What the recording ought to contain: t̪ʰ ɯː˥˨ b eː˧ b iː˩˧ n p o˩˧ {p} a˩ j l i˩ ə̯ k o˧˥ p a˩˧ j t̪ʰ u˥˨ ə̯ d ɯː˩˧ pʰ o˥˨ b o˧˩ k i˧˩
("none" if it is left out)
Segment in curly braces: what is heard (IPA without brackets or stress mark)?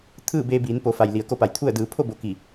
f